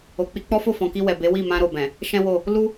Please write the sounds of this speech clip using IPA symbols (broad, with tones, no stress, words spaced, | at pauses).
o˨k͡pi˧k͡pɔ˦fo˦˨ fɔ̃˨ki˧wɛ˨ be˨˦wi˦˨ mã˧ɾo˨bɛ̃˨ | ʃɛ̃˦wo˦˨ | lu˦